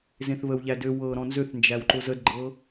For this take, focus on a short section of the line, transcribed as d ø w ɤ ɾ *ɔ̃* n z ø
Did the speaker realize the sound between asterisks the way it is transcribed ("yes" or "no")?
yes